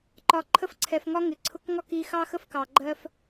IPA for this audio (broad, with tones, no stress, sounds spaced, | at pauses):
ǃ ɒ˨ ǃʰ ə˧ f ǀʰ ɛ˨ f ŋ ɒ˧ ŋ ɪ˨ ǀʰ ʊ˧ k ŋ ɒ˦ k i˧ x ɑ˦ x ə˦ f k ɑ˨ ɡ͡ǃ ɜ˦ f